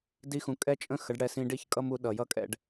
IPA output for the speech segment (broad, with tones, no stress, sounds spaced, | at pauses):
d i˦ x ũ˧ kʼ ɛ˦ t͡ʃʼ ə̃˦ x ə˨˦ ɖ ɽ ɛ˧ s ĩ˧ ɖ i˦ ç kʼ ʌ˦ m u˨˦ ɗ ʌ˨ j ʌ˦ kʼ ɛ̰˧ ɖ